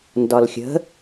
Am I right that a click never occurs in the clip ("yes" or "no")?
yes